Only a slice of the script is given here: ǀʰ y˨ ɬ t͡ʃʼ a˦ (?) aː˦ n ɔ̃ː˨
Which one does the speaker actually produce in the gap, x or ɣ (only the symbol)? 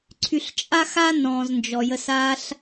x